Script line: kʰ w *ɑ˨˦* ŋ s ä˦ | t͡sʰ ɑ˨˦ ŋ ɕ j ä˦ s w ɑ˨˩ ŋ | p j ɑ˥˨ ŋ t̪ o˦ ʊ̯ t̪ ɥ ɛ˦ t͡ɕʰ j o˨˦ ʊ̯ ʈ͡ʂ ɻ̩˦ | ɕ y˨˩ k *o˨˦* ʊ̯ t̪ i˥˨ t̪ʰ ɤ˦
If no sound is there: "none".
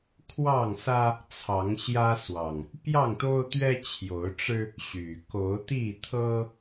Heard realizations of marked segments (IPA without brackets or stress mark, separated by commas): ɑ˥˨, o˨˦